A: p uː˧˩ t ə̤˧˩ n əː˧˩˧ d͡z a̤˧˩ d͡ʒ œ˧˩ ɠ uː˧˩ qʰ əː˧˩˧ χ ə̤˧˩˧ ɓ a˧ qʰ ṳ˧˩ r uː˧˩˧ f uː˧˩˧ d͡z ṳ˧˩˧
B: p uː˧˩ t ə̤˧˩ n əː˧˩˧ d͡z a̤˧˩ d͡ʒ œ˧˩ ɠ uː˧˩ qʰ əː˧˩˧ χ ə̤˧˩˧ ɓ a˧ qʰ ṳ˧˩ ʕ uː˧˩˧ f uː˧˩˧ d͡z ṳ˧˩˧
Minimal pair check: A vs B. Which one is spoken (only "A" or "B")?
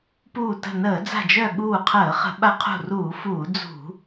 A